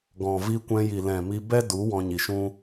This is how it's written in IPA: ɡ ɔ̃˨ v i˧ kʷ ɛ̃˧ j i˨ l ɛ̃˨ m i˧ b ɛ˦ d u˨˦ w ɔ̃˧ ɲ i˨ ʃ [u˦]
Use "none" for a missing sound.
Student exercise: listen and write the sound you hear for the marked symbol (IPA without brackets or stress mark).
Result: ũ˦